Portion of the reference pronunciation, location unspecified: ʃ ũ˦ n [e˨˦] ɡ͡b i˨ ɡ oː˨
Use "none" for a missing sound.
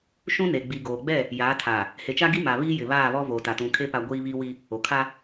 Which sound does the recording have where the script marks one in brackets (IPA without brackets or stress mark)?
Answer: e˨